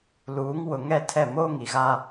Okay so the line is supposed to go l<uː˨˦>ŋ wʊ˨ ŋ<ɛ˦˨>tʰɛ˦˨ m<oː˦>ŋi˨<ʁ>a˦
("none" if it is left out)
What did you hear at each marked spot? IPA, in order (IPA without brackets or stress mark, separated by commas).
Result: uː˨˦, ɛ˦˨, oː˦, ɣ